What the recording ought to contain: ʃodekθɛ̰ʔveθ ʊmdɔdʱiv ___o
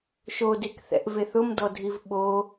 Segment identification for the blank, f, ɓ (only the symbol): ɓ